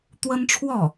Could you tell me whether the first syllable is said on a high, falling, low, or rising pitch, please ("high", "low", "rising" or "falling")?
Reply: high